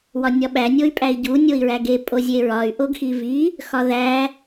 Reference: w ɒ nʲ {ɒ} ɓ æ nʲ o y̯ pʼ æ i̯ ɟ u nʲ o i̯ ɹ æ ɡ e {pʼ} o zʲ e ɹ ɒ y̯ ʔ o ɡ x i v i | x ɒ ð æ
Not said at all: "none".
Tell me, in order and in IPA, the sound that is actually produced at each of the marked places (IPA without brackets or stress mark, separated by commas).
ɒ, pʼ